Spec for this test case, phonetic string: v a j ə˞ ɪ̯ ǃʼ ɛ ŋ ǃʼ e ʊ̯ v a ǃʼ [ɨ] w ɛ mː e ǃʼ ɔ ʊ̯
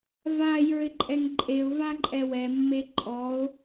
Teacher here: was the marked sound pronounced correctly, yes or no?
no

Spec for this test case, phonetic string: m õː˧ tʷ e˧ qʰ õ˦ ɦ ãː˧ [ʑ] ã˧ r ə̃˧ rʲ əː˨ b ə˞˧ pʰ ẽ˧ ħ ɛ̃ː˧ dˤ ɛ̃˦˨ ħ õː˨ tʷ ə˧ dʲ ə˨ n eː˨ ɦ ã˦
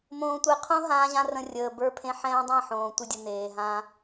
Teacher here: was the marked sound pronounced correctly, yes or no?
yes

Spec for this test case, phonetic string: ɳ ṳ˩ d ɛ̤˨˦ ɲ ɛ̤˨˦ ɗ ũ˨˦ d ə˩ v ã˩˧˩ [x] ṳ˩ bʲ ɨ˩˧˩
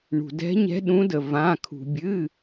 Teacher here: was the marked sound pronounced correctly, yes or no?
no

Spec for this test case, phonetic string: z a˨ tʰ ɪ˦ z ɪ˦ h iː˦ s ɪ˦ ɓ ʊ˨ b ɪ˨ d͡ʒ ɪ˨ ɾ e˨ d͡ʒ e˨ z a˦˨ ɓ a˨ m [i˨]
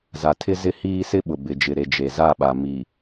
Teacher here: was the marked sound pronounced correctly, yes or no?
yes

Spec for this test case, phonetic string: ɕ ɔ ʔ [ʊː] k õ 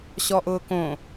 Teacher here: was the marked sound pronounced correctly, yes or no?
yes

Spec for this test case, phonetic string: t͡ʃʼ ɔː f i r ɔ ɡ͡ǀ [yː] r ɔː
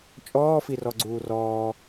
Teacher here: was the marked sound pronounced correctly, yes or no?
no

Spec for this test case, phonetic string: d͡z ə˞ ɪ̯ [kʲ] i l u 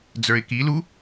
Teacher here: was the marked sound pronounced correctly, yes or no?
no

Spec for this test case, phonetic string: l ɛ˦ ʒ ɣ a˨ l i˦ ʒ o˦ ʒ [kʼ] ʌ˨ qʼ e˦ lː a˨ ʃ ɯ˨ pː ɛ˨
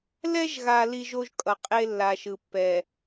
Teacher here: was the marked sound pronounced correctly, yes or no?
yes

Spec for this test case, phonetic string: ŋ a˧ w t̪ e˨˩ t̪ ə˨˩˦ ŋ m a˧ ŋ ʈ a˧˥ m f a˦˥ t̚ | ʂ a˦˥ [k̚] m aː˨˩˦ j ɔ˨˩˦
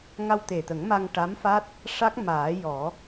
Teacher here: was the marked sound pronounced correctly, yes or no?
yes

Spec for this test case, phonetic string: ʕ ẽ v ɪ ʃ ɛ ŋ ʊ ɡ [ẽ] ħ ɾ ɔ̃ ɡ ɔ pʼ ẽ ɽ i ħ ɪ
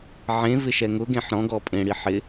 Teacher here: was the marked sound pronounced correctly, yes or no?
yes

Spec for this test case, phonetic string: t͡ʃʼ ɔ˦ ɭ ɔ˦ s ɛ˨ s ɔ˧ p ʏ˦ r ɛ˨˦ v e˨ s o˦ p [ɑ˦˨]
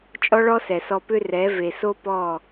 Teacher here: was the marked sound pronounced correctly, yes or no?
no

